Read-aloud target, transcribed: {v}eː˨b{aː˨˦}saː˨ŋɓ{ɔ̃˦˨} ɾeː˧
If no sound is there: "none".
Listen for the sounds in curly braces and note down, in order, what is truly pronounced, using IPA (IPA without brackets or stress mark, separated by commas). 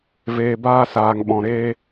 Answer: v, aː˧, ɔ̃˨